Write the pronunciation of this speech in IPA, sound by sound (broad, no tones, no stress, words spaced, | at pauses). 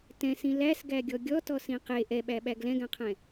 tɛ̃sĩ læsɡæɡʲɔ ɡʲɔtɔsĩ qe ʔɛɓæɓæɡ lɛ̃ɡæ̃qʰɛ̃